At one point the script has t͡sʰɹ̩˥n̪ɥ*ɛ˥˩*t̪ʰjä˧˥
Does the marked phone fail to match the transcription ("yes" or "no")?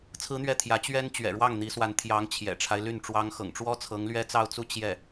no